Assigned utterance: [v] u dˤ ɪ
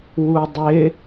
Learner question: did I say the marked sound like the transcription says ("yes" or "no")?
no